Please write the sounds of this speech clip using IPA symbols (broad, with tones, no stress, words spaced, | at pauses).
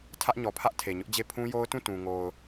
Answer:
tʰä˦ʔɲɔ˨pʰä˦ʔ tʰe˨ɲʊ˦ʔd͡ʑe˦˨ pʰũ˦ jo˦ʊ̯tũ˦˨tũ˨ ŋo˨ʊ̯